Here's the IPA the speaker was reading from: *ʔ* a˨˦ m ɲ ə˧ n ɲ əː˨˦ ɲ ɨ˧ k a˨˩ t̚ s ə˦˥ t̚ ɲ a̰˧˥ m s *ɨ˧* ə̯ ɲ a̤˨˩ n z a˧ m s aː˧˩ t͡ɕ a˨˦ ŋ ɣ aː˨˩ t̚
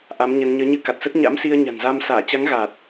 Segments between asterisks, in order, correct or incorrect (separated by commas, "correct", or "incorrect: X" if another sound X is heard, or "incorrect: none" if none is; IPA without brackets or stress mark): correct, incorrect: i˧